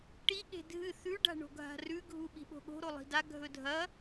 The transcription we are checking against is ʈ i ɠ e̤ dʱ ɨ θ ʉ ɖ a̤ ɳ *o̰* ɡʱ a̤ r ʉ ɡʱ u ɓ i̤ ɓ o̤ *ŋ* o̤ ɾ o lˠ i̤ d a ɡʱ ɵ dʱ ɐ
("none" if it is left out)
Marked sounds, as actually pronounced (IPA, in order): o̤, ɠ

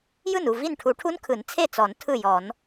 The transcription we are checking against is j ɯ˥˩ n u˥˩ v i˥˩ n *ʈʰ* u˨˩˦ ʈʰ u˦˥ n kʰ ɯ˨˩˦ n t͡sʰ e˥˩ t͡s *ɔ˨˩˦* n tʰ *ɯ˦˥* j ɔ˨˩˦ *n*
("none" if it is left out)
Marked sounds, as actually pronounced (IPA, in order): ʈʰ, ɔ˨˩˦, ɯ˥˩, n

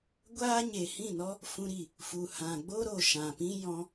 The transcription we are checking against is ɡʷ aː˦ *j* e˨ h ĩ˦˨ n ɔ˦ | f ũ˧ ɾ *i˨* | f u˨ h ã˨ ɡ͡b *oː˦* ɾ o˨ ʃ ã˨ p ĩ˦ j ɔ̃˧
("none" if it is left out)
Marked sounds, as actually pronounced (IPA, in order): ɲ, i˨, o˦

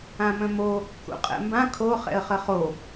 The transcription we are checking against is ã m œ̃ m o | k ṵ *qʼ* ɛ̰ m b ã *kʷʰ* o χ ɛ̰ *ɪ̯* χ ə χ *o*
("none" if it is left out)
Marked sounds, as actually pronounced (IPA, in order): qʼ, kʰ, ə̯, o

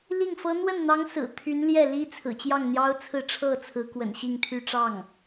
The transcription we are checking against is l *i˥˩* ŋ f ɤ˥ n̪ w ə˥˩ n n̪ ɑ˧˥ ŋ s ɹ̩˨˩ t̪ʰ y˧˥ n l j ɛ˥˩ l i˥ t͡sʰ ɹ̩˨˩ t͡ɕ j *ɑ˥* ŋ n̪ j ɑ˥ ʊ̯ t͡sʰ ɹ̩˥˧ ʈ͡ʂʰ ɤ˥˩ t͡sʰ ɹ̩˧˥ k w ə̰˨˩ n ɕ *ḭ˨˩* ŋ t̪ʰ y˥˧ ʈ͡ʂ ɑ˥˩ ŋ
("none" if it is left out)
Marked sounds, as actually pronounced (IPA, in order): i˥˩, ɑ˥˩, i˥˧

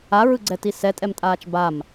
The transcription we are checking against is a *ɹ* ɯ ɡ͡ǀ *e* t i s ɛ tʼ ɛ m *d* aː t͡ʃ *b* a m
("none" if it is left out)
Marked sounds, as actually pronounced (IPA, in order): ɹ, ɛ, tʼ, b

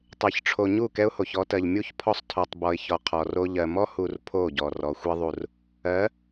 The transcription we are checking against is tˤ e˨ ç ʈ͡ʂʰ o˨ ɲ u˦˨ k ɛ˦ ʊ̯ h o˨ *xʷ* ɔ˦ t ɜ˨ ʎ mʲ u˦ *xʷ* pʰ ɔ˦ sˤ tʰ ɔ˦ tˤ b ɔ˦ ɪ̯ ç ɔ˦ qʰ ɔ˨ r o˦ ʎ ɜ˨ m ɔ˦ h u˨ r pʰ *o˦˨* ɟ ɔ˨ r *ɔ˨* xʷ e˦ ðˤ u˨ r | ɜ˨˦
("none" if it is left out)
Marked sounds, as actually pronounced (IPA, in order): ç, ç, o˦˨, ɔ˨

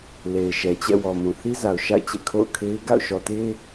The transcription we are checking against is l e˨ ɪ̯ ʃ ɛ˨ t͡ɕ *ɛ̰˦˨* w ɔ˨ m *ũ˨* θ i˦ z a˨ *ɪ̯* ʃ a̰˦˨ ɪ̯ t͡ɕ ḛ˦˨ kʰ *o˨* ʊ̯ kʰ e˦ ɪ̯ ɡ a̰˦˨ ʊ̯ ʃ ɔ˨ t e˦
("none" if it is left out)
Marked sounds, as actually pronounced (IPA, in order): ɛ̰˦˨, ũ˨, ʊ̯, o̰˦˨

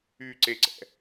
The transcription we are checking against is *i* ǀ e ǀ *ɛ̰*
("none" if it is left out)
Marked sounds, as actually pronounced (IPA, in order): y, ɛ̰

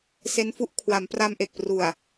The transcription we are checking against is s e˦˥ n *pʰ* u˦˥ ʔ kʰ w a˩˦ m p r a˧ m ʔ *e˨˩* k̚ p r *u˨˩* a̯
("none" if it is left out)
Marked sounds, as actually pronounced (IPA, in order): f, e˨˩, u˨˩

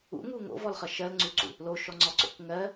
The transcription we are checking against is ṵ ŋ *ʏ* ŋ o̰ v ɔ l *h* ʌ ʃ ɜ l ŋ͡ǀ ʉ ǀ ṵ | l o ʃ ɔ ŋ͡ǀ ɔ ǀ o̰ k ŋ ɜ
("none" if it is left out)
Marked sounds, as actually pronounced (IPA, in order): u, χ

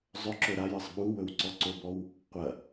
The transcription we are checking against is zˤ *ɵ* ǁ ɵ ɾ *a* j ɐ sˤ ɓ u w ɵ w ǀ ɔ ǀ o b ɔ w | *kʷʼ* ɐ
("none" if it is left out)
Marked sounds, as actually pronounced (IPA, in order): ɵ, a, qʷ

